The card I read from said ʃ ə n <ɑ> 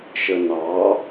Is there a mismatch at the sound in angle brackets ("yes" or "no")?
no